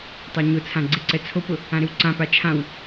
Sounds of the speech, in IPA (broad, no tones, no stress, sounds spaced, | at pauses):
tˤ a ɲ ʊ t͡sʰ ã ɡ͡ǀ e ǀ ɛ t͡sʰ o p ʊ | ã ɾ ɪ w ǀ ã p a t͡ʃʰ ã w